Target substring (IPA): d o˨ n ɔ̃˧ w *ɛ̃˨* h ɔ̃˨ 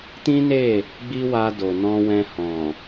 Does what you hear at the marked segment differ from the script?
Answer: yes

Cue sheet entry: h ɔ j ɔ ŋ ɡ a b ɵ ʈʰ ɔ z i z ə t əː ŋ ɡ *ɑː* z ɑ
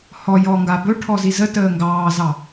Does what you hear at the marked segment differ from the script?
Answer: no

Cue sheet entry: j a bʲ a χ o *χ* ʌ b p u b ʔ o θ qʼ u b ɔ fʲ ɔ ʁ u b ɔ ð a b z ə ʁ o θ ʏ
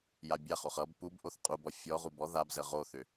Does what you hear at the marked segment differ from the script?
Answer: no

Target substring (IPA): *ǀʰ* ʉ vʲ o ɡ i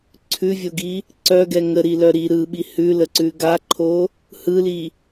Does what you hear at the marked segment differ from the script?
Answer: no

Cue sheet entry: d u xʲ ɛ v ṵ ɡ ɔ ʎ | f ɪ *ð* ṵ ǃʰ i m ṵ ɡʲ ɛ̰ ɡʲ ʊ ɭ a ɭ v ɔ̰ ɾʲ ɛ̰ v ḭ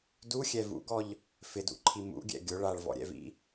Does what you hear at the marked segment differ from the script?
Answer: yes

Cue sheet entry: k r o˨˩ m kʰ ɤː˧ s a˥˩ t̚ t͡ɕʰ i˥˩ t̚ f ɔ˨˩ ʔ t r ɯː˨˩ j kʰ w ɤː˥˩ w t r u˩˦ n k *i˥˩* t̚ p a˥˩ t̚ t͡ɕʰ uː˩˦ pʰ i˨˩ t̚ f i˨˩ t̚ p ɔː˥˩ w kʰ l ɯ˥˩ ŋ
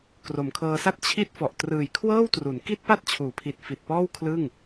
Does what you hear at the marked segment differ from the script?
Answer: no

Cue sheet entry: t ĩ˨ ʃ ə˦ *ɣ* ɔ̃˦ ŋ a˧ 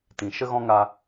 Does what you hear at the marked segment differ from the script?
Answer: no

